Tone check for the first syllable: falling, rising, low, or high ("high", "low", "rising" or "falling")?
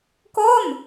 falling